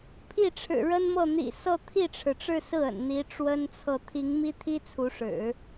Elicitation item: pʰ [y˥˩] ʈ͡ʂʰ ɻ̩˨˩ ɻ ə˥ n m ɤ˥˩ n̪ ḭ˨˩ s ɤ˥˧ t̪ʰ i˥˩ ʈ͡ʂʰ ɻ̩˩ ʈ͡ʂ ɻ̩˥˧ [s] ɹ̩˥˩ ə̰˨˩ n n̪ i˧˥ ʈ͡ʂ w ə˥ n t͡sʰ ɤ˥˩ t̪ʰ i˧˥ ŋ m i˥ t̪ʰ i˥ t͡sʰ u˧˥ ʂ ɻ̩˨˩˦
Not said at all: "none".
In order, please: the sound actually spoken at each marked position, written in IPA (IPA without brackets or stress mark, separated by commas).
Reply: i˥˩, s